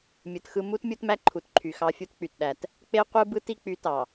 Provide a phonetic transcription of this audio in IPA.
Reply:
mʲ ɯ˨ t x ɯ˦ m u˦ t mʲ u˦ t m æ˦ ǃʰ u˨ t ǃʰ y˨ x ɑ˦ fʲ u˦ t k͡p y˨ t ɗ æ˨ t | k͡p e˦ qʷ ɯ˦ b ɯ˦ t i˦ k͡p y˨˦ t ɑ˨

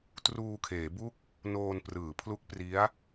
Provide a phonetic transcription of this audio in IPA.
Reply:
t r uː˧ kʰ eː˩˦ b u˥˩ k̚ | n oː˧ n p r ɯː˩˦ pʰ l u˦˥ k̚ p r i˦˥ a̯

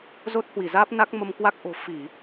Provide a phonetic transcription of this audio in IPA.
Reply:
z o˦˥ t̚ h w i˧˩ z aː˦˥ p̚ n a˦˥ k̚ m ə˧ m k w a˦˥ k̚ ʔ o̤˨˩ f i˧˩˨

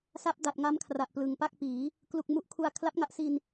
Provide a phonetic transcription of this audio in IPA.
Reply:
s a˦˥ p̚ d a˨˩ t̚ ŋ a˦˥ m kʰ r a˨˩ ʔ p l ɯ˨˩ ŋ p a˥˩ k̚ p iː˩˦ | k l u˨˩ k̚ m u˦˥ ʔ kʰ u˧ a̯ kʰ l a˦˥ p̚ ŋ a˦˥ ʔ s i˧ n

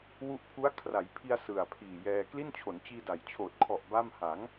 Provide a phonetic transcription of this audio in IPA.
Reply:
w u˦˥ ʔ pʰ u˦˥ a̯ kʰ r a˩˦ j pʰ i˧ a̯ s ɯ˨˩ a̯ pʰ iː˨˩ j ɛː˧ k l i˥˩ n t͡ɕʰ o˩˦ n t͡ɕ iː˧ d a˩˦ j t͡ɕʰ oː˨˩ t̚ kʰ ɔ˨˩ ʔ b a˥˩ m h a˩˦ ŋ

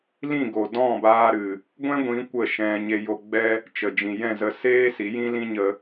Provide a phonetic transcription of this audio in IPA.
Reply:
l ĩ˦˨ ɡ o˨ d ɔ̃˦˨ b aː˧ ɾ ɨ˨ | ɡʷ ɛ̃˦ ɡʷ ĩ˨˦ kʷ ə˦˨ ʃ ɛ̃˧ ɲ e˧ j o˧ ɡ͡b ɛ˦ | t͡ʃ ə˨ d͡ʒ ĩ˨ j ɛ̃˦˨ z ə˧ s eː˦ s i˨˦ j ĩ˦ l ĩ˦ ɲ ə˧

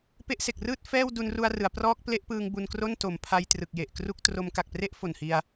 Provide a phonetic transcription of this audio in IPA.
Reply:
p e˦˥ ʔ s e˨˩ k̚ r ɯː˥˩ t̚ f ɛː˥˩ w d u˧ n r u˧ a̯ r ɯ˩˦ a̯ p r ɔː˦˥ k̚ p l e˦˥ ʔ p ɯː˧ ŋ b u˧ n k r o˥˩ n t o˩˦ m pʰ a˧ j t r ɯ˨˩ k̚ j e˨˩ ʔ k r u˥˩ k̚ t r o˦˥ m k a˨˩ k̚ p r e˥˩ ʔ f o˨˩ n h i˧ a̯

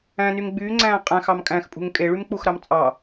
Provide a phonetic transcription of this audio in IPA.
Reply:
æ̃ n y ŋ ɡ͡b yː ŋ͡ǀ æ̃ː qʼ æ̃ x ɑ m kʼ æ̃ x pʼ ṳ ŋ kʼ e ɭ y m k͡p u x ɾ ɑ m t͡sʼ ɑ

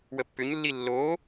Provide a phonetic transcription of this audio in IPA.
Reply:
w ə pː ʏ ɲ lː i lː o

